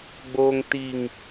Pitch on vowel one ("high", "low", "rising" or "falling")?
low